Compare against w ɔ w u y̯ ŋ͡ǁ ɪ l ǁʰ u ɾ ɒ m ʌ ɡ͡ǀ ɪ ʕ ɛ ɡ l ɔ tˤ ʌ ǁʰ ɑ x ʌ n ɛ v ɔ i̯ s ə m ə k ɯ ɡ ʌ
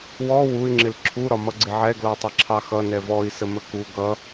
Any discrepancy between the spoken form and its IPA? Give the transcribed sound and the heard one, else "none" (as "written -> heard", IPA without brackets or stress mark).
ɯ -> u